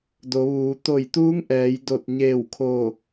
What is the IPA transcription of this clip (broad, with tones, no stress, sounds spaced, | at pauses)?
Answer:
d o˩˧ ʋ uː˩˧ t̪ o˧˩ j t̪ uː˧˥ ŋ ʔ ɛː˩˧ j d o˧˩ t̚ ɲ eː˧˩ w kʰ o˧˩